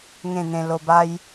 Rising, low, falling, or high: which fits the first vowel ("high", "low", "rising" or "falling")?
falling